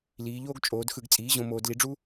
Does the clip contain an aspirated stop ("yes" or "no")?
no